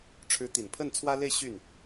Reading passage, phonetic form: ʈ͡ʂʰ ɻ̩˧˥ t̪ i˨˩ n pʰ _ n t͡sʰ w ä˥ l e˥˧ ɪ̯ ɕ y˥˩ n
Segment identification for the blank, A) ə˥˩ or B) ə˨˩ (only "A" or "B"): A